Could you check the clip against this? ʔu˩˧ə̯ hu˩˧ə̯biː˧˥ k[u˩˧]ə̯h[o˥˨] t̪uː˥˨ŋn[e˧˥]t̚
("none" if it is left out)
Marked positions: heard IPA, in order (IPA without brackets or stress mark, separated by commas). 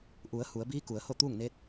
u˩˧, o˥˨, e˧˥